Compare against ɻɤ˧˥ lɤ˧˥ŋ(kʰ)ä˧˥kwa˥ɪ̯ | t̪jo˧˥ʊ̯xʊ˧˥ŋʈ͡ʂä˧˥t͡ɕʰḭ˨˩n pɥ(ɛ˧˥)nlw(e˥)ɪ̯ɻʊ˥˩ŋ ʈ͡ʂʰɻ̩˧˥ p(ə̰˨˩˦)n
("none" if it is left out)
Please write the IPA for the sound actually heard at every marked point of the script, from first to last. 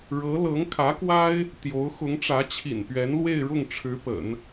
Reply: kʰ, ɛ˧˥, e˥˧, ə̰˨˩˦

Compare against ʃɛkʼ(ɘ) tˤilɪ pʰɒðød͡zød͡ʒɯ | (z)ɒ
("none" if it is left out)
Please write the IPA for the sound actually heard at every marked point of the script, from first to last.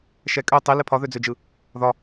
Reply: ø, ð

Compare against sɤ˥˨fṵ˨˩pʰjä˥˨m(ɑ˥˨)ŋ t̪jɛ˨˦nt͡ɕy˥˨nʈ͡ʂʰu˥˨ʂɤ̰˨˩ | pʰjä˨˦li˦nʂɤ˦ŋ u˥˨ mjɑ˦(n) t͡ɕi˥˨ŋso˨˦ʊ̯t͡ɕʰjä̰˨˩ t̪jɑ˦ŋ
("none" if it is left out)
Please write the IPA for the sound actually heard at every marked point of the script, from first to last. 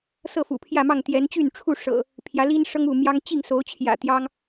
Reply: ɑ˥˨, ŋ

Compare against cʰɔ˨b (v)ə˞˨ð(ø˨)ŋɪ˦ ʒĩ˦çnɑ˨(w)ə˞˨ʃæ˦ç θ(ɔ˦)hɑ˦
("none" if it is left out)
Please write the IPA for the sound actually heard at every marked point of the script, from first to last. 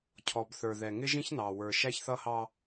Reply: θ, ɛ˨, w, ʌ˦

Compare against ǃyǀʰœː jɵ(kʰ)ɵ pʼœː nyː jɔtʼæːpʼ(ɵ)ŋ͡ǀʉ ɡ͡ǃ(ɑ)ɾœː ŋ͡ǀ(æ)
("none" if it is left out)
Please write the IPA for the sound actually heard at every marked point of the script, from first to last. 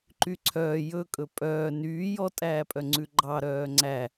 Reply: kʼ, œ, ɑ, æ

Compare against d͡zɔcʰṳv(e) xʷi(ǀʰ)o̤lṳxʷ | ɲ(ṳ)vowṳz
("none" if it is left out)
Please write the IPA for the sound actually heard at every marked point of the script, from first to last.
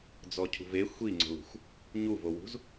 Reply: e, ŋ͡ǀ, u

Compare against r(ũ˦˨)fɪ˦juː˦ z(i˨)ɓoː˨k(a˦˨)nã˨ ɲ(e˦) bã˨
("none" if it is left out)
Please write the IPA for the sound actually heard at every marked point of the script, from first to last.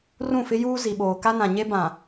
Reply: ũ˦˨, i˨, a˦, e˦

